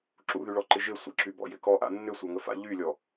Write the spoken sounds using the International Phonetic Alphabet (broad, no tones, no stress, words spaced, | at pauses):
ǁṵðyɭɔǃɪ ʒɪ sʷə̰ǁybɔ̰jɪ kɔʔa̰ nːʏsʷaŋəfa̰ ʎylʲɔ